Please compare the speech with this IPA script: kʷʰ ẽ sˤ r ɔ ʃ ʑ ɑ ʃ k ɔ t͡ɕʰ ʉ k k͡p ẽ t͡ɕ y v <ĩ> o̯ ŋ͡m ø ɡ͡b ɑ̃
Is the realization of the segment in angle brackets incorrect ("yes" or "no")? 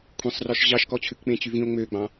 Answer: no